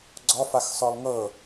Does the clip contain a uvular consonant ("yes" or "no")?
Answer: no